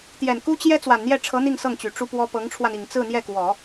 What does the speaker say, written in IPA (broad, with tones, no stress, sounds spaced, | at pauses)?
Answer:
t̪ j ɛ˨˩ n k u˥ t͡ɕ j ɛ˥ t͡s w a˨˩ n n̪ j ɛ˥˩ ʈ͡ʂʰ ɤ˧˥ n̪ i˥˧ ŋ s ɤ˥˩ ŋ t͡ɕ y˨˩ ʈ͡ʂ u˥ p w ɔ˥ p ɤ˧˥ ŋ ʈ͡ʂʰ w a˧ n i˨˩ ŋ t͡s ɹ̩˥˧ n̪ j ɛ˥˩ k w ɔ˨˩˦